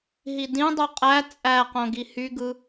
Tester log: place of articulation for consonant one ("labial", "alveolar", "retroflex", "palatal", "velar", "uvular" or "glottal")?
glottal